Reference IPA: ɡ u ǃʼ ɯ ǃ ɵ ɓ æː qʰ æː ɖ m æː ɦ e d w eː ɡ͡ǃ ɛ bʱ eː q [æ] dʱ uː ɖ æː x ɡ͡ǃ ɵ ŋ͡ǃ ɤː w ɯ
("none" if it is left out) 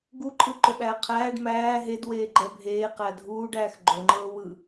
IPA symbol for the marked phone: æ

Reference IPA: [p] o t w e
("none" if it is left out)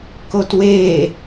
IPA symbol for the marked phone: k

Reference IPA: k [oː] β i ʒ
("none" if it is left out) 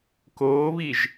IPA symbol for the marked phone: oː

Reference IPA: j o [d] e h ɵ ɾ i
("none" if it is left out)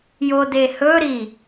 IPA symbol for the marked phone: d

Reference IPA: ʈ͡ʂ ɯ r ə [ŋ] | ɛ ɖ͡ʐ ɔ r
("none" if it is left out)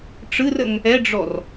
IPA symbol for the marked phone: ŋ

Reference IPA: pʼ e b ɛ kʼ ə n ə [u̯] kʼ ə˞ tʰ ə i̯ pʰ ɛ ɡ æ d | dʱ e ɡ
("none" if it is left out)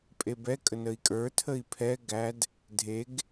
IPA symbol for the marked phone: i̯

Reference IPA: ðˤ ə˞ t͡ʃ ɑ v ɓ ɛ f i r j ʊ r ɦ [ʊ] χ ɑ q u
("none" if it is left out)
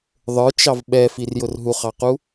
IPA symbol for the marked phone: u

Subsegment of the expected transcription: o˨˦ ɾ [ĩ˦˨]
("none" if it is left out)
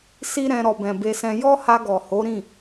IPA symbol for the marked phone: ĩ˦˨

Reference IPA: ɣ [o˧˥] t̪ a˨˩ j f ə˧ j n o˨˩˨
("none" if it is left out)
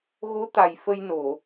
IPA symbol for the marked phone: o˧˥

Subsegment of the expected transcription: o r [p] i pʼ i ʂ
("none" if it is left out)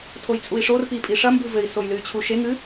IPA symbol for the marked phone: p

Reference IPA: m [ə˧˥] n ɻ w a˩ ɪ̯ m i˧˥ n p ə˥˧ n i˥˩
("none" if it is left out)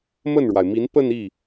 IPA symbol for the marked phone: ə˥˩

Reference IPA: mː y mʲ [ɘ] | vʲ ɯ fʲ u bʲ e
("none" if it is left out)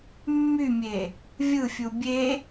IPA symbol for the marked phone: e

